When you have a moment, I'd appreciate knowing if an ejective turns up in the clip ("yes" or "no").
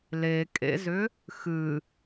yes